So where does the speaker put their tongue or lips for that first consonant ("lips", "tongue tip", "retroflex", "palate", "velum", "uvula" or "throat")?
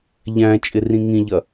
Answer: palate